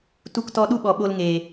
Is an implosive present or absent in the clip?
present